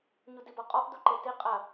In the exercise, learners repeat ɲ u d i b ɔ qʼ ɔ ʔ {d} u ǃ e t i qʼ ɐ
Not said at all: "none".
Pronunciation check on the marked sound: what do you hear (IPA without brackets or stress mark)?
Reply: d